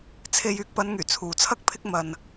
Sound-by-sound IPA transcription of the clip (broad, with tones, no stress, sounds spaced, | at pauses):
t͡sʰ e˥ j yː˧ k̚ p ɐ˨˧ n ŋ yː˨˩ t͡sʰ uː˨ t͡sʰ ɐ˥ k̚ pʰ ɪ˥ k̚ m ɐ˧ n